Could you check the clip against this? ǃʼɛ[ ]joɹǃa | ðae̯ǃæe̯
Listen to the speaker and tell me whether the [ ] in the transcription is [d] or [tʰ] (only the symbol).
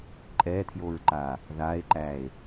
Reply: tʰ